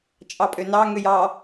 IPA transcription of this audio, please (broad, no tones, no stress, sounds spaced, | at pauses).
t͡ʃʼ ɑ pʼ ø n ɑ ŋ ø j ɑ